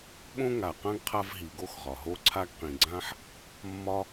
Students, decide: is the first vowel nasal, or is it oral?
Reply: nasal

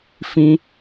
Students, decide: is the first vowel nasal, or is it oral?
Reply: nasal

